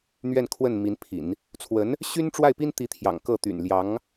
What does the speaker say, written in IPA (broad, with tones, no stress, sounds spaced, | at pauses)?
n̪ ɥ ɛ˥˧ n kʰ w ə˥˩ n m i˧˥ n pʰ ḭ˨˩˦ n | t͡sʰ w ə˧˥ n | ɕ y˥ n ʈ͡ʂ w a˥˩ ɪ̯ p i˥ n t̪ i˧˥ t̪ʰ j ɑ̰˨˩ ŋ k ɤ˥˩ t̪ y̰˨˩ n l j ɑ˧˥ ŋ